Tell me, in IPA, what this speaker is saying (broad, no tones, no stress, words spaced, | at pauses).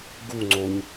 ɡu ŋ͡ǀoɲ